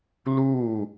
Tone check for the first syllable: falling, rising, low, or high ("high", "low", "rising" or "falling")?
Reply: falling